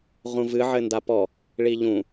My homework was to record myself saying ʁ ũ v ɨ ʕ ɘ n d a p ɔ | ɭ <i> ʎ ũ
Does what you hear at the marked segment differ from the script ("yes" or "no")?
no